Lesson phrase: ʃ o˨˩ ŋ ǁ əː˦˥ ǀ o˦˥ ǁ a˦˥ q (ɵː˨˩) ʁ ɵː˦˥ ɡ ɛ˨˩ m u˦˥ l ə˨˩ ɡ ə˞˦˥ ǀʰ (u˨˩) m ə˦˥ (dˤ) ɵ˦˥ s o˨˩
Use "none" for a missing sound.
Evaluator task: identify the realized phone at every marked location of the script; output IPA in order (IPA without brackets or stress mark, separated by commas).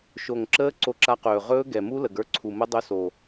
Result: ɵː˨˩, u˨˩, dˤ